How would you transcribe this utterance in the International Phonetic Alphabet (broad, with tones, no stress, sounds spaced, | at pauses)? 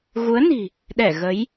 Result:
ɣ u˨˦ ə̯ n i̤˨˩ | ɗ ɛ˧˩ ɣ ə˨˦ j